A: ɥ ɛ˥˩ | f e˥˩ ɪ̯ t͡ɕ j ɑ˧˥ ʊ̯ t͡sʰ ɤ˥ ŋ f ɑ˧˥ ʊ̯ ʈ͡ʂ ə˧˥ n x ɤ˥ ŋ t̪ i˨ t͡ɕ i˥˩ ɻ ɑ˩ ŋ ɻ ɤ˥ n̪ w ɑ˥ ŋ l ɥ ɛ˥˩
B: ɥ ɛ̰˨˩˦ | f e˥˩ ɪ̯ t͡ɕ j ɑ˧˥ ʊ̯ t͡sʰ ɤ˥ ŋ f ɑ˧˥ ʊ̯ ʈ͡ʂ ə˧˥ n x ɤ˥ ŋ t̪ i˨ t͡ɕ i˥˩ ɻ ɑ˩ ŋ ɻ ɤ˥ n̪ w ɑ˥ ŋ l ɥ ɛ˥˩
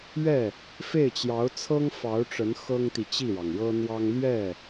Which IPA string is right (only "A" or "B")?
A